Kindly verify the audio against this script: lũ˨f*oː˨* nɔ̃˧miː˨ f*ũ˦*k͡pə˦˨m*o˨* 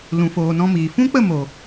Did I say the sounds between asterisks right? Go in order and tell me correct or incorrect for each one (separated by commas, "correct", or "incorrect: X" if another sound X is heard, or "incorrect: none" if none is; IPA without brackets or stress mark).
correct, correct, correct